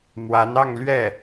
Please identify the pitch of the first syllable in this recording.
rising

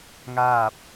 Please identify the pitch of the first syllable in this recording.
falling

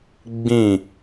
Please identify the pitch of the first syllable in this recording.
falling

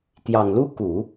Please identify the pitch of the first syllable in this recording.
low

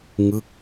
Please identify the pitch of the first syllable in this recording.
falling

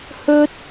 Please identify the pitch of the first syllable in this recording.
high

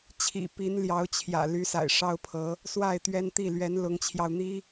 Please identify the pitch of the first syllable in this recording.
low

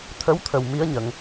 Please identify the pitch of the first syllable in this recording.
rising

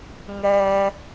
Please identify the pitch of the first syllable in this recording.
high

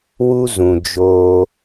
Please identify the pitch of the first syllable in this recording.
high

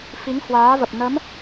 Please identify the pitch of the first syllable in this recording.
rising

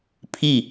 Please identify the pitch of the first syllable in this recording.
falling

